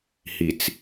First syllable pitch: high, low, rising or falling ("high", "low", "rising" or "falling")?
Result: low